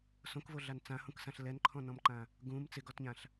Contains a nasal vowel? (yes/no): yes